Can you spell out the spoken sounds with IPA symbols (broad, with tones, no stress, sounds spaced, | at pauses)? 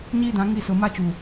ɲ iː˦ d ã˨˦ ŋ i˦˨ s ʊ˨ m a˦ t͡ʃ u˨